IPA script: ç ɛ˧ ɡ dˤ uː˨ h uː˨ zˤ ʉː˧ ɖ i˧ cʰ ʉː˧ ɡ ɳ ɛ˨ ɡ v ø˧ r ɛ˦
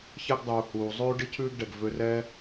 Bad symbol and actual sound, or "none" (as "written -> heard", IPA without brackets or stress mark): ɳ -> ɖ